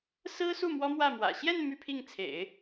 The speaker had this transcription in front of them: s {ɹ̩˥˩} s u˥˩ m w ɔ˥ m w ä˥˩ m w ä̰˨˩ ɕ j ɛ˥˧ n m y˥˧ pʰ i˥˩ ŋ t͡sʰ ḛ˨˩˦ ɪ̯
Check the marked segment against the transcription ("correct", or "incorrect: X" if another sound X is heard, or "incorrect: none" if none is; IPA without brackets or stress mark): incorrect: ɹ̩˥